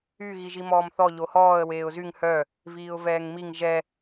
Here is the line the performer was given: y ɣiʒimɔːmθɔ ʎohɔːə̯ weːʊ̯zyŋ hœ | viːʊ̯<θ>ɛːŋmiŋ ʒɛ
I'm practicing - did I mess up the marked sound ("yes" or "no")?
yes